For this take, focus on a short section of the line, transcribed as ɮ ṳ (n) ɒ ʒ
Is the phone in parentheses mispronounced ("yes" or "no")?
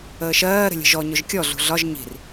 yes